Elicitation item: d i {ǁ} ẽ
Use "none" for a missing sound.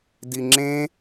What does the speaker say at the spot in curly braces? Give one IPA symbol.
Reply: ŋ͡ǁ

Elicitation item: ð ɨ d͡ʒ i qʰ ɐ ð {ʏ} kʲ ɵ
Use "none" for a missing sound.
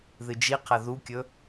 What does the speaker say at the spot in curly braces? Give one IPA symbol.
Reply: u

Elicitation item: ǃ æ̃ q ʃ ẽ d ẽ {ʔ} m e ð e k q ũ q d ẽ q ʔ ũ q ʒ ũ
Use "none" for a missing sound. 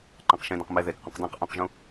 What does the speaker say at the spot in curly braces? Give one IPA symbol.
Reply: q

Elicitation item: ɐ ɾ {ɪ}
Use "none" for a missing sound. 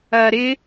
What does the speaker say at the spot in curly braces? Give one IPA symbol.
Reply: ɪ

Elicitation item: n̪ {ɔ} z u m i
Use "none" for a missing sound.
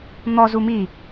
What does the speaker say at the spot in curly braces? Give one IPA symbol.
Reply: ɔ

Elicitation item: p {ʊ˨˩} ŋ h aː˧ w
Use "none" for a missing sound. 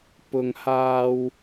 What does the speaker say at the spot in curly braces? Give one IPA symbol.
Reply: ʊ˧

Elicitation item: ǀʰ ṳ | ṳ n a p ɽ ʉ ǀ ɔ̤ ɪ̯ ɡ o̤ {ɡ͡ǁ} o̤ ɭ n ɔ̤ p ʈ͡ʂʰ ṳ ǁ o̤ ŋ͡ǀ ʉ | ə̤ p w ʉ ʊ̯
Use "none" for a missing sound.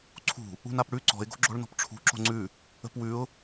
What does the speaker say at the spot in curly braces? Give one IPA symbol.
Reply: ɡ͡ǁ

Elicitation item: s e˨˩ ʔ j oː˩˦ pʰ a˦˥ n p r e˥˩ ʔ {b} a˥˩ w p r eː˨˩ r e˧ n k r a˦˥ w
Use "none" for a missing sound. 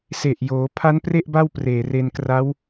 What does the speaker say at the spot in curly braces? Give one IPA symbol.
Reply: b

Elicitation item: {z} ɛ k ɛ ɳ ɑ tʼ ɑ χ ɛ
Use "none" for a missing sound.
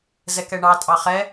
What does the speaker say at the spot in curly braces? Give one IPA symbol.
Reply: z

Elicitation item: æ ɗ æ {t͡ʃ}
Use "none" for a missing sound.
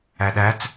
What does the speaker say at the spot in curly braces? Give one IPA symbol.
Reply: t͡s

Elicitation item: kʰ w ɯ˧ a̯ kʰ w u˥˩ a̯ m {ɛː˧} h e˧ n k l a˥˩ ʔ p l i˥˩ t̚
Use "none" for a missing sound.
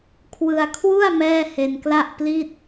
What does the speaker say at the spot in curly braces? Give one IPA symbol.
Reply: ɛː˥˩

